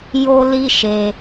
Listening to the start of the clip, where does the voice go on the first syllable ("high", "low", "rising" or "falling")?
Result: high